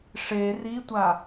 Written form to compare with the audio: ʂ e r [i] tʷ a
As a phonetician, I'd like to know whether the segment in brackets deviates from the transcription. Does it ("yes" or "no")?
no